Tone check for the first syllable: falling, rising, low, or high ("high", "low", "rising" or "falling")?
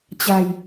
low